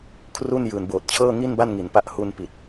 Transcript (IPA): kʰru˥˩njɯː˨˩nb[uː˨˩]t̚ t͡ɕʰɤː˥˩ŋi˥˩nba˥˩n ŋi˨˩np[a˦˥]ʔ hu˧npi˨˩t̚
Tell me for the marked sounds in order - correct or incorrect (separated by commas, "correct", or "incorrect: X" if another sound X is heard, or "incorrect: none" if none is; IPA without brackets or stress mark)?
incorrect: oː˨˩, correct